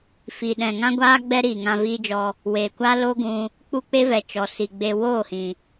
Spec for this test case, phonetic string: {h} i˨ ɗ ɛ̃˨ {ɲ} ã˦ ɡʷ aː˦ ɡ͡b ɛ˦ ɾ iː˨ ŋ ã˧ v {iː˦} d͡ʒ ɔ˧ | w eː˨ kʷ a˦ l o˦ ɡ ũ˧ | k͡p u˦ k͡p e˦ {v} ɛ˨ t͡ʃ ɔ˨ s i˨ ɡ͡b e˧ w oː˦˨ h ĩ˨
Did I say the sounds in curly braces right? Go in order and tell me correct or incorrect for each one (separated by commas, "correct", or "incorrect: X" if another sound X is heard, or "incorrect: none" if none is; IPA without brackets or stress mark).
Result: incorrect: f, incorrect: ŋ, correct, correct